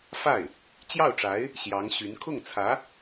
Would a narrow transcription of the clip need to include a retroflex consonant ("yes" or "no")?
yes